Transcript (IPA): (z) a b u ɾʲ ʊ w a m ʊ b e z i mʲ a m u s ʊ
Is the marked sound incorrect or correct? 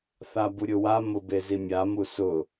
incorrect